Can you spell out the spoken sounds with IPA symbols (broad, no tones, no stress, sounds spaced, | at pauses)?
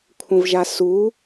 kʷʰ ə̃ v ʒ a s u